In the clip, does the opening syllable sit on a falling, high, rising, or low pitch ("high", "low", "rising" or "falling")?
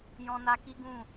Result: high